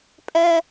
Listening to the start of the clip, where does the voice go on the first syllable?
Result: high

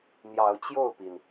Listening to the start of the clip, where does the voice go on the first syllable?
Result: rising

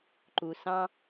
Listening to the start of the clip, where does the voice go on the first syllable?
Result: low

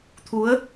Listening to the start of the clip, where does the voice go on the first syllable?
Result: rising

